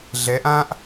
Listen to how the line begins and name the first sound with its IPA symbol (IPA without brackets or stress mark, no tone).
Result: ɮ